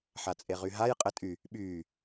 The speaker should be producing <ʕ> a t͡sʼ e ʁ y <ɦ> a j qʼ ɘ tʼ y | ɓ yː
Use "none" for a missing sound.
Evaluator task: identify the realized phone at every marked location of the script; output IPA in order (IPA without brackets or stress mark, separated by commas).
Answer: ħ, ɦ